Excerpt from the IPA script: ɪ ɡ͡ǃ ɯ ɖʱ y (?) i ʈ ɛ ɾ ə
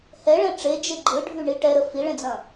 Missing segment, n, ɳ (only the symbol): ɳ